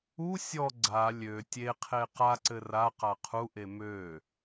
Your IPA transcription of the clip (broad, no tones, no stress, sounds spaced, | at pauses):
u sʲ ɔ ɡ͡ǀ a lʲ ø tʲ e qʰ e q a ǀ ɘ r a q a qʰ u ʔ e m ø